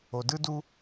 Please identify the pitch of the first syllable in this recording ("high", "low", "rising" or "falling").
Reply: low